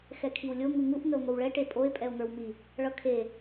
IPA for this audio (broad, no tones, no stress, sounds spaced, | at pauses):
x ɛ kʰ i w lʲ o ŋ u ŋ u ʔ ŋ ə o̯ ŋ o w ɭ ɛ ʈ e pʼ o e̯ pʼ ɛ o̯ ŋ ə˞ w m i | ɭ ʌ kʰ e